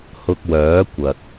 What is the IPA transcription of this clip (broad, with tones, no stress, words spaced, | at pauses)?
hʊ˧k̚wœː˨˥ kʷɐ˨k̚